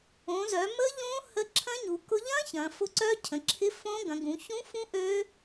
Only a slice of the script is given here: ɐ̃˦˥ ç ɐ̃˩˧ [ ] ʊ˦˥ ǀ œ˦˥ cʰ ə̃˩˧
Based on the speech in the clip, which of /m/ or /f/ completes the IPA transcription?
f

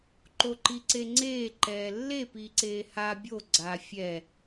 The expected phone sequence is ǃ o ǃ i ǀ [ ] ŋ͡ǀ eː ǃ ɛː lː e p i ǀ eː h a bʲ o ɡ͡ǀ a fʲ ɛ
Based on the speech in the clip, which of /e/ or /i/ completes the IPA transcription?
e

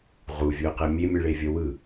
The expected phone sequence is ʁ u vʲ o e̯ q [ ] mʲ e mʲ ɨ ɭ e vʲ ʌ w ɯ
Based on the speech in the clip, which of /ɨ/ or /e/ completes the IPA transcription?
e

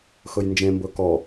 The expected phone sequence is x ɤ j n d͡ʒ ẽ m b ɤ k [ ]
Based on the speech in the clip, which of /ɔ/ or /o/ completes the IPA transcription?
ɔ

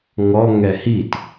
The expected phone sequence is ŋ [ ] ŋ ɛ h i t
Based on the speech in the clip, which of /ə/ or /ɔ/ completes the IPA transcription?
ɔ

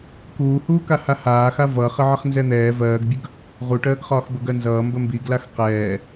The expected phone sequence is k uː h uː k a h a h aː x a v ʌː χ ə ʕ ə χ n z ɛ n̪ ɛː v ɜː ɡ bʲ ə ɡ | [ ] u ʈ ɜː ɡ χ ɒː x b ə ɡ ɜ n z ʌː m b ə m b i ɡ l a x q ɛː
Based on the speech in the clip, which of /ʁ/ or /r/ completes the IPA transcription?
ʁ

